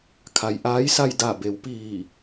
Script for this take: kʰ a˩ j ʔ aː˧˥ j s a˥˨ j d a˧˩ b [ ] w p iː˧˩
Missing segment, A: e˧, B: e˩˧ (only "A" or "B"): B